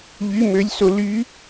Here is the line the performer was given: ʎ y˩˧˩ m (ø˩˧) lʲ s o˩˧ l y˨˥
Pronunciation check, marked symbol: correct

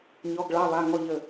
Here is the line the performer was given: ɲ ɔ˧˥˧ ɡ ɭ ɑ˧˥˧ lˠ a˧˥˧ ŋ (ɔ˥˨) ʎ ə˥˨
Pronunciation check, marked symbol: correct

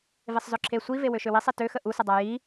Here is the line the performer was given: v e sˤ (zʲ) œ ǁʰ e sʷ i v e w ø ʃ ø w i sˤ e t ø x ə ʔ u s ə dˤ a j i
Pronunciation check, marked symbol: incorrect: z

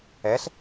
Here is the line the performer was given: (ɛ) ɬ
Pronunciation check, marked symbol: correct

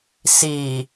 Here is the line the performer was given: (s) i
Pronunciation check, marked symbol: correct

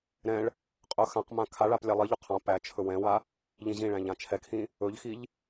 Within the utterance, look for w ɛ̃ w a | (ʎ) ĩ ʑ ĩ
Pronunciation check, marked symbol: correct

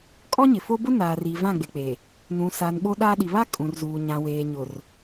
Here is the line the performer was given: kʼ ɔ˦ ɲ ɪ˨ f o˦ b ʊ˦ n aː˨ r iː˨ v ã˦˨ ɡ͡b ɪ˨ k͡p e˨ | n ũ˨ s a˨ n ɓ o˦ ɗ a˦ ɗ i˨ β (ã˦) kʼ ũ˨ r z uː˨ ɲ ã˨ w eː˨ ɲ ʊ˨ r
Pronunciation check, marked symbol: incorrect: a˦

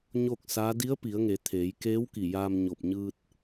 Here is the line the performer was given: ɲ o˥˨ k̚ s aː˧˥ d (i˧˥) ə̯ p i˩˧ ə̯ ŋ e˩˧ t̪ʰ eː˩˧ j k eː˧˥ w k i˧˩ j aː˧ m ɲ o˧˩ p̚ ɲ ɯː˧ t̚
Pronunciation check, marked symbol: correct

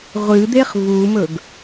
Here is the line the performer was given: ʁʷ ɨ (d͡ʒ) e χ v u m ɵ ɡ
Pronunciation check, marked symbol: incorrect: d̪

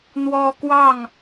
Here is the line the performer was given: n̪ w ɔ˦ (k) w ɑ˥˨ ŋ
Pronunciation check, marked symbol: correct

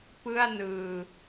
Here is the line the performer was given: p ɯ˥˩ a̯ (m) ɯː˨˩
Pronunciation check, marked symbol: incorrect: n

